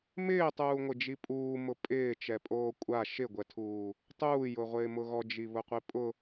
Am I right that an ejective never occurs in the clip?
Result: no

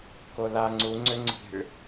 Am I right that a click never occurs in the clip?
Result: no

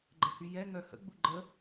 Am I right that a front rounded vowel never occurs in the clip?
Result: no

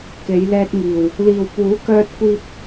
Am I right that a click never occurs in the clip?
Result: yes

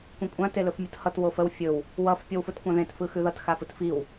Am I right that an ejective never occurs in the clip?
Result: no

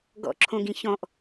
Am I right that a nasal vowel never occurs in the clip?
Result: no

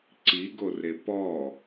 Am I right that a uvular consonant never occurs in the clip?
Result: yes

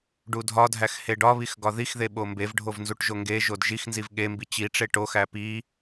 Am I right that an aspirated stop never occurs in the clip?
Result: yes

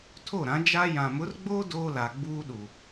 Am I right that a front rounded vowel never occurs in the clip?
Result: yes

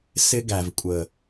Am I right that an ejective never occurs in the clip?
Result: no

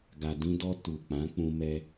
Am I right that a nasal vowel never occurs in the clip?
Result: no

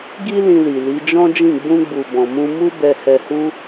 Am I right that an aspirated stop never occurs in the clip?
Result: yes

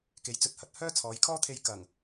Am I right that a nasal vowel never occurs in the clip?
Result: yes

